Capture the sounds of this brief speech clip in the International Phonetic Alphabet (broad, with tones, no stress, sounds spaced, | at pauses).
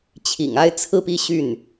t͡ɕʰ ḭ˨˩ ŋ a˥ ɪ̯ t͡sʰ ɹ̩˥˧ p i˥˧ ɕ y˥˩ n